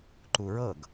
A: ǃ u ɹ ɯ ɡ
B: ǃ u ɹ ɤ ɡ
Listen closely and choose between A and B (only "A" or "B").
B